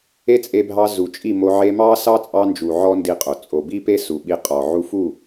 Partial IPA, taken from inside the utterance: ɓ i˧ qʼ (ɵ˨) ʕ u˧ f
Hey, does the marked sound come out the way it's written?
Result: no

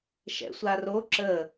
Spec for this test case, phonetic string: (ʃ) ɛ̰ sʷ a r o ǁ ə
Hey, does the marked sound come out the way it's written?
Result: yes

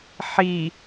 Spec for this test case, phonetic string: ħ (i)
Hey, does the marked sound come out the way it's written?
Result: yes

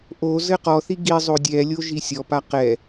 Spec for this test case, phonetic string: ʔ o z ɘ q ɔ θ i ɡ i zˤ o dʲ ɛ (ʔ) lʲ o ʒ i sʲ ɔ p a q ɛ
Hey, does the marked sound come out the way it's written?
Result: no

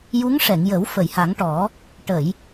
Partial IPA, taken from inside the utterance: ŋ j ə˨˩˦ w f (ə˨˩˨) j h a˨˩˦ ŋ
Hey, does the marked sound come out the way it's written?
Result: yes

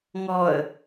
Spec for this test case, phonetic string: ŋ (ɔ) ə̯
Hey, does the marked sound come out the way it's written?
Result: yes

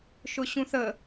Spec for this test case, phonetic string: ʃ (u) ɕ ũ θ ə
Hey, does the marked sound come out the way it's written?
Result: no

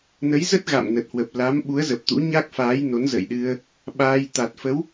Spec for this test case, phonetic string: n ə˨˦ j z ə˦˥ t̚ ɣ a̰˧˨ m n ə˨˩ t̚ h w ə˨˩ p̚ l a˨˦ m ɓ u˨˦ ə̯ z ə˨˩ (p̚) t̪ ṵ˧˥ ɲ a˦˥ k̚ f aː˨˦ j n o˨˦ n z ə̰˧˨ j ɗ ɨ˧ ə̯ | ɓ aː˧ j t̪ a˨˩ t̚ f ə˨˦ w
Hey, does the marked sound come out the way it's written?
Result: yes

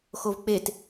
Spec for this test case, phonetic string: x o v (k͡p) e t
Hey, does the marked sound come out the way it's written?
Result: yes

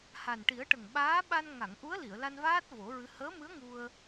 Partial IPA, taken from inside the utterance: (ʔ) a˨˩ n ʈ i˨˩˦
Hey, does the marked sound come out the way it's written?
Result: no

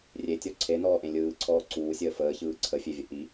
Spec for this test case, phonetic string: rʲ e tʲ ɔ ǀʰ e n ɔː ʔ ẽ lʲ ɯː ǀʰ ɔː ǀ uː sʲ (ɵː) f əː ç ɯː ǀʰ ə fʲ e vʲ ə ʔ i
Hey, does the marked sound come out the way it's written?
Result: no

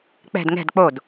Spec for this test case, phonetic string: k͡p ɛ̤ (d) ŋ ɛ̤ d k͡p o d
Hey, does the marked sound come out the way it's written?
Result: yes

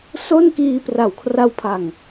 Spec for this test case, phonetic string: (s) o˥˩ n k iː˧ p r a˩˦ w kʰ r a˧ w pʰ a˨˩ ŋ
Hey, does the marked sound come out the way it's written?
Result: yes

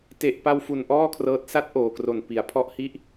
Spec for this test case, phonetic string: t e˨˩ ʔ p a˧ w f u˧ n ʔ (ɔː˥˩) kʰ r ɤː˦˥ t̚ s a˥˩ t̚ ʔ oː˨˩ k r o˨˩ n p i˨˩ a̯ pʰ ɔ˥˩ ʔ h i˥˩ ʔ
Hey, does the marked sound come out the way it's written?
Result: yes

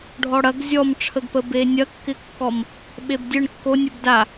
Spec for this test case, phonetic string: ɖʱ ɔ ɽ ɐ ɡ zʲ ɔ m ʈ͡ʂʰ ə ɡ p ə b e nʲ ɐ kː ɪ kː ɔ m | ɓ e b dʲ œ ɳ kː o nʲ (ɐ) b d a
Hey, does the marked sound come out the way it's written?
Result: no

